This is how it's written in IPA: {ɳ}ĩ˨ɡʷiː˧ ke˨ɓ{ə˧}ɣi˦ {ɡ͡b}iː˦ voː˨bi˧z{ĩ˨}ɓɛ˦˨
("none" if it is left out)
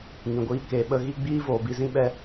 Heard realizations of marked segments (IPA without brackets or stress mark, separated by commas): ŋ, ə˧, ɡ͡b, ĩ˦